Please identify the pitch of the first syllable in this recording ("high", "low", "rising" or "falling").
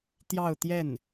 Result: falling